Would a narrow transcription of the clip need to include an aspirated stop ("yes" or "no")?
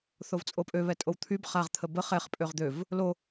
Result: yes